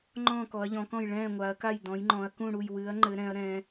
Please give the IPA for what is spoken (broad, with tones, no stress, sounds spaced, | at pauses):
ŋ͡ǃ ɔ̃ː˥˨ k ɔ˨˦ ɐ̯ ʎ ɔ̃˨˦ k ɔ̃˥˨ j ɭ ɛ̃ː˥˨ ŋʷ a˨˦ ɐ̯ k a˥˨ j d ɔ̃˨˦ j ŋ͡ǃ ɔ̃˨˦ ɐ̯ k ũ˥˨ ɽ u˥˨ j w ɨ˨˦ ɐ̯ ŋ͡ǃ ɘ˨˦ ɾ ɛ̃˨˦ ɐ̯ ɾ ɛ̃ː˨˦